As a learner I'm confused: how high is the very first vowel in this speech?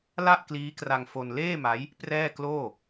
low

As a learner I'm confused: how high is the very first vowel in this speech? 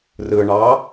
high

